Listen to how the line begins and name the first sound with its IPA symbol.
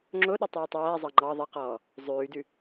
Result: ŋ͡ǁ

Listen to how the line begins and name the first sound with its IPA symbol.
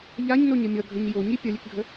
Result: ʎ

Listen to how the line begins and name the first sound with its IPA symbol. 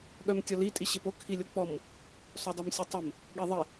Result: ɠ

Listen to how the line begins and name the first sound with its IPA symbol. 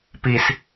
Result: p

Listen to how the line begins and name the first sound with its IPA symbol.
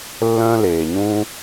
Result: lː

